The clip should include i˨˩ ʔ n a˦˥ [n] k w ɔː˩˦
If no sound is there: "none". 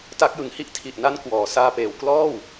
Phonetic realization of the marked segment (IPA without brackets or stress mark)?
n